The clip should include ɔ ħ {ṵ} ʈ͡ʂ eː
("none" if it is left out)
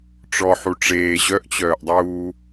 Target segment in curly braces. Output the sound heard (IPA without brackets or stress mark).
u